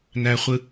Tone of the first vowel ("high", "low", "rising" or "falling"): high